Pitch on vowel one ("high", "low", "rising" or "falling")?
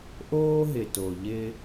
high